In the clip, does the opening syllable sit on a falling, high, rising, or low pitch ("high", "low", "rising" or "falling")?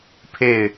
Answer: falling